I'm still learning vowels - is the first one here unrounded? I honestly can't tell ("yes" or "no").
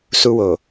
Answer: no